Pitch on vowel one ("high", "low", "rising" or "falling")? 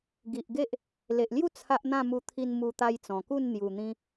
low